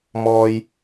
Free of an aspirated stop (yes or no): yes